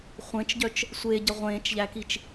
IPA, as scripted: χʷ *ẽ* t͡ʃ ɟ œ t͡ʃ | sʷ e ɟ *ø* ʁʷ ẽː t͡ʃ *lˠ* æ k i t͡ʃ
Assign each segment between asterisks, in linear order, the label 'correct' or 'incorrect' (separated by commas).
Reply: correct, incorrect, incorrect